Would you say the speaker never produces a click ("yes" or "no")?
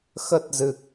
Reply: yes